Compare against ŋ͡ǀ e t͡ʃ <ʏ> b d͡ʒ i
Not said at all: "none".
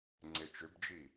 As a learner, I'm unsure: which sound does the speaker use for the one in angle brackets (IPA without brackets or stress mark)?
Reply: ʏ